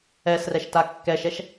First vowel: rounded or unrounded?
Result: unrounded